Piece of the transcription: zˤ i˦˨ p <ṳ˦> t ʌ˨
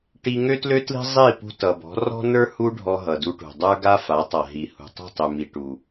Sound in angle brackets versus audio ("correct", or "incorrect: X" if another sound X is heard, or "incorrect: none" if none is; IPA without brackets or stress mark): incorrect: ṳ˧